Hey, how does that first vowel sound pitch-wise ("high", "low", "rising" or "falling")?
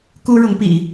high